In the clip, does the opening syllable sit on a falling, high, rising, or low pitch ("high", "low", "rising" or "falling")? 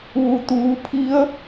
low